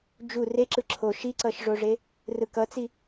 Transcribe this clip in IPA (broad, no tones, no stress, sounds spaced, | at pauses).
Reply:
d͡ʒ u r e ǁ ɯ ǁʰ o ʃ i ǀ ʌ ʃ ʐ o ʐ e | r ɯ k ʌ t͡s i